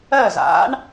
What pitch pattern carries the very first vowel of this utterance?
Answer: falling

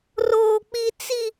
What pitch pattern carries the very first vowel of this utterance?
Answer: high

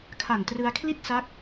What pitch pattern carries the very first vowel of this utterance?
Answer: low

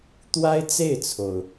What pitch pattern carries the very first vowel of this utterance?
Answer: high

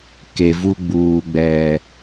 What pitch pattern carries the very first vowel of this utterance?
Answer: low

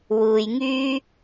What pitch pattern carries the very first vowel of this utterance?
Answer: low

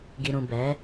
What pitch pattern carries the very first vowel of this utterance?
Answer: low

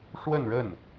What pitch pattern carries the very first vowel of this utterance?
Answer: falling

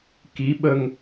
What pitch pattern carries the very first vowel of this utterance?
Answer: rising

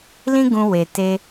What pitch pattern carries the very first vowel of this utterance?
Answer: high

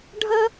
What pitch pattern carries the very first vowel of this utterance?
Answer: high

